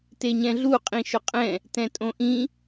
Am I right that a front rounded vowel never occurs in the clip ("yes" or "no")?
yes